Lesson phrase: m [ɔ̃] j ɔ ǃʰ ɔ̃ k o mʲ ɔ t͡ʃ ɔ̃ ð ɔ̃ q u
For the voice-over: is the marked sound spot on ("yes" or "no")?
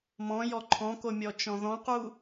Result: yes